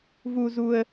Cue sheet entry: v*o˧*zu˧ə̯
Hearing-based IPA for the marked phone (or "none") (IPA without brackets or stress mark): u˧